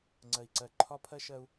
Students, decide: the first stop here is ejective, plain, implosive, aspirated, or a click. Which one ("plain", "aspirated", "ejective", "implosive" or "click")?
click